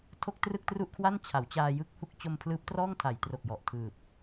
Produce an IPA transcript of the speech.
tʰ o˥˩ k̚ t r ɯ˥˩ k̚ t r u˥˩ ʔ kʰ w a˥˩ n t͡ɕʰ a˩˦ w t͡ɕ aː˧ j ɯ˥˩ k̚ h u˥˩ k̚ t͡ɕ o˧ m pʰ l ɯː˦˥ p̚ t r ɔː˥˩ ŋ tʰ a˩˦ j t r o˨˩ k̚ j ɔ˨˩ ʔ tʰ ɯː˨˩ p̚

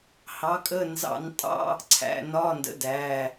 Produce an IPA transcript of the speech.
h ɑ˨˦ kʼ ə˧˥˧ n z ɑ̰˧˩˧ n tʼ ɑ̰˧˥˧ | ǀʰ æ̰˩˧˩ n ɒː˧˥˧ n d ə̰˨˦ d æː˩˧˩

